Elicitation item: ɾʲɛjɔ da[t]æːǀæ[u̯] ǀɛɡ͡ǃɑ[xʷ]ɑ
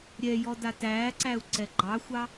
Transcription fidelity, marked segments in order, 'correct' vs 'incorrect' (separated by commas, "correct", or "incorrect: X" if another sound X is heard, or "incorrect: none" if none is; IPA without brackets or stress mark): correct, correct, correct